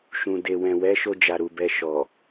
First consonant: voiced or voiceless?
voiceless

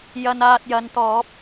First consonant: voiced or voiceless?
voiced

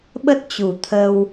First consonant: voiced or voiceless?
voiced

